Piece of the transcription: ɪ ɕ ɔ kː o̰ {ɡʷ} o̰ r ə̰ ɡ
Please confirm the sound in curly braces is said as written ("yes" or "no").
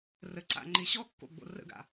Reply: no